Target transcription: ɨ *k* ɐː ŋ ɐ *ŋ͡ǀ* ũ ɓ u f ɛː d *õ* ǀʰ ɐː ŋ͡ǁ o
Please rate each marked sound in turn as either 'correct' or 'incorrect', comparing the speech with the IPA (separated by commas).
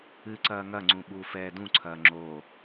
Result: incorrect, correct, incorrect